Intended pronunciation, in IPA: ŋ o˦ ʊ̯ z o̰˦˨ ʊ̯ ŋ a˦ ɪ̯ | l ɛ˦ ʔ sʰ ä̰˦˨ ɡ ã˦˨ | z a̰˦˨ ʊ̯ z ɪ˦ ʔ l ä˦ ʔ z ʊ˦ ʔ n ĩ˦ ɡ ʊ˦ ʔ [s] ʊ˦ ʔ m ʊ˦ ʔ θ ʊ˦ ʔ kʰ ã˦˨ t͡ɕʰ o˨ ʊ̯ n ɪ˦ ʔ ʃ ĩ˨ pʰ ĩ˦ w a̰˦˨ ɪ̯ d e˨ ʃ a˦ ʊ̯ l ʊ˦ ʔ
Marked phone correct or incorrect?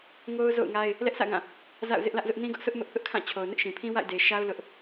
correct